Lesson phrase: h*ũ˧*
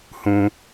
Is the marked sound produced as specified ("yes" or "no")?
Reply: yes